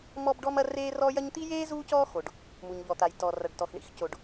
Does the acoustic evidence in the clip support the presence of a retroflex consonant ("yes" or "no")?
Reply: yes